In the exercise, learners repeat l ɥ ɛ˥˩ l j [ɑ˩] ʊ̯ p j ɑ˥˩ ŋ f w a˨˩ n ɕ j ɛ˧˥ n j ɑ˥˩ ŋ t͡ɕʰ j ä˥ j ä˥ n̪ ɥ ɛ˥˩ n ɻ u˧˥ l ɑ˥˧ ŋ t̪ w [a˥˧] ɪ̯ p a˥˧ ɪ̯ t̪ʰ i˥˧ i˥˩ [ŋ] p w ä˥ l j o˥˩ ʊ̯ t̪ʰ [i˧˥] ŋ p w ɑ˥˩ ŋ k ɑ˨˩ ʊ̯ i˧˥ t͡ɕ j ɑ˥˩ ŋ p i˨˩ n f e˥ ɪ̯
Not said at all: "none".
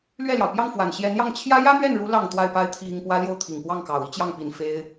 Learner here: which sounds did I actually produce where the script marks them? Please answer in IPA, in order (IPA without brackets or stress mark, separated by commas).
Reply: ɑ˩, a˥˧, ŋ, i˨˩